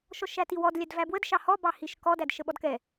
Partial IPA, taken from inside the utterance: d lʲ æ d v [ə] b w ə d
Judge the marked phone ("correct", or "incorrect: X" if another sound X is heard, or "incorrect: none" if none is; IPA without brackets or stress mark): incorrect: æ